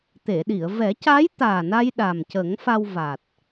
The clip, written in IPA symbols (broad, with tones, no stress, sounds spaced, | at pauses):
t̪ e˨˩˨ ɗ i˨˩˨ ə̯ v ɛ˨˩˦ c a˧˥ j t̪ aː˨˩ n a˧ j ɗ a˨˩ m c ə˨˩˦ ŋ f a˧ w v a˨˩ t̚